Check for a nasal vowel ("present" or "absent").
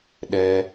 absent